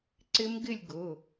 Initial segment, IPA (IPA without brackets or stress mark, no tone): ǀ